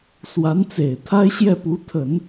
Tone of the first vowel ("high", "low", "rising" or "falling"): rising